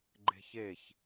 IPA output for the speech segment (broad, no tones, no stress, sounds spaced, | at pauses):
ɡ͡ǃ e̤ ç e ç